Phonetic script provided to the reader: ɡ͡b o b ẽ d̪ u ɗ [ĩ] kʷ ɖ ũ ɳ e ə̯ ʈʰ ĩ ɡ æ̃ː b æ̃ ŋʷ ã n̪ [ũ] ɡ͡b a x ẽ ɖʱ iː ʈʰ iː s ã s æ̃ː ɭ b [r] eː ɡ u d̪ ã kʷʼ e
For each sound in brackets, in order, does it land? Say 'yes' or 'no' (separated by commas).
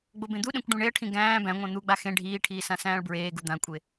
no, no, no